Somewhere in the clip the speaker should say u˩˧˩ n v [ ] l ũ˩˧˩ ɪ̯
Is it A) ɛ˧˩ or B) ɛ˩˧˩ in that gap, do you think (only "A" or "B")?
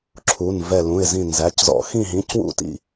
A